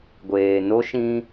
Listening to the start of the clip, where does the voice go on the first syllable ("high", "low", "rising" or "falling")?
low